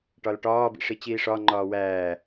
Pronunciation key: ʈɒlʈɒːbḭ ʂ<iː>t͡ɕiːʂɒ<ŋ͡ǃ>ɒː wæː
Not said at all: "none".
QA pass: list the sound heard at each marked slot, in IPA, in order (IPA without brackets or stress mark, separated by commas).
i, ŋ͡ǃ